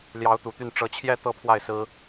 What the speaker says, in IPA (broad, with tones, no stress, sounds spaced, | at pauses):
l j ɑ˧˥ ʊ̯ t̪ u˨˩ t̪ y˥˩ n ʈ͡ʂ ɤ˧˥ t͡ɕʰ j ɛ˥ t̪ ɤ˥˧ pʰ w a˥˩ ɪ̯ s ɹ̩˥